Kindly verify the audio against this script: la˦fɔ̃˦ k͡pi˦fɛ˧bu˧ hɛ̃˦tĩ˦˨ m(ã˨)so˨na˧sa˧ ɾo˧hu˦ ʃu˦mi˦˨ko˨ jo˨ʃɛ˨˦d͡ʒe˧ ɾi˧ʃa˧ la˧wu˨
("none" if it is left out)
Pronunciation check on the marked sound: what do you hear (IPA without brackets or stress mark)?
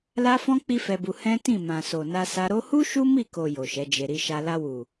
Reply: ã˨